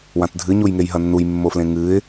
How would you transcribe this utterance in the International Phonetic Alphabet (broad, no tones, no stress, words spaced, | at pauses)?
wãtdʱɨ ɲujŋejɦɐnːuj mːoflẽŋɨɪ̯